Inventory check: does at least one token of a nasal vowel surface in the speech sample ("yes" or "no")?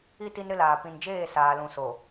yes